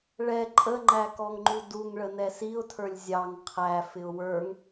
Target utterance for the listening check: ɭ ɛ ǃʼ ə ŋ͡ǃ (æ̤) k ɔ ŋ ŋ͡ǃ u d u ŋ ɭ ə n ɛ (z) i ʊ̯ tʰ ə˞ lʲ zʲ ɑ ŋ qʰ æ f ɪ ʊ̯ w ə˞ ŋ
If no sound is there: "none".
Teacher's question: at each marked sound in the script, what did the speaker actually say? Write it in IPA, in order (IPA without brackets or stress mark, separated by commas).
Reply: æ, s